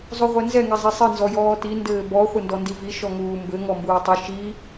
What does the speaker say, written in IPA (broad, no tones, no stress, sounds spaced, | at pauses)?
zˤ u ʁʷ ɛ n z ɛ ŋ ɛ zˤ e sˤ ɨ n z ɔ j ɔː t i n d ɘː b ɔ χʷ ɘ n d ɔ n d i v i ʃ ɔ ŋ uː m b ɘ ŋ ɔ m b uː tˤ ɨ ʃ i